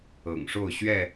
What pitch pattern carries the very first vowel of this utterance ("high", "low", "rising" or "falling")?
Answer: low